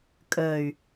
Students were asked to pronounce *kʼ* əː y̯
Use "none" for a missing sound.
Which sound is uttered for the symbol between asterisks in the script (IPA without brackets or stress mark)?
kʼ